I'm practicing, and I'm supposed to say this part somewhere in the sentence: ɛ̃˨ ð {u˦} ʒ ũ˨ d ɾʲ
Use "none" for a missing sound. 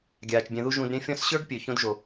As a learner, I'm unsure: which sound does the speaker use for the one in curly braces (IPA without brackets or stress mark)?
u˦